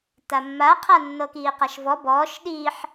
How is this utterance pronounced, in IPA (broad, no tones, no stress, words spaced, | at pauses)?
tamːa qʰa nːɤkiːqaʃvɔ bɔːʃ ɗiːħ